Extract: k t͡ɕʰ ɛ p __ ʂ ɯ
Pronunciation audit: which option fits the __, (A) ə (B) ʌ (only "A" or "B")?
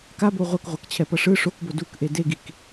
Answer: B